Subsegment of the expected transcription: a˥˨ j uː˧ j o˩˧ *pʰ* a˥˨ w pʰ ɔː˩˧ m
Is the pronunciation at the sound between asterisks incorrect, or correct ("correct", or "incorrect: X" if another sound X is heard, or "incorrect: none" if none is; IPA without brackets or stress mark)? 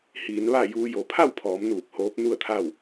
correct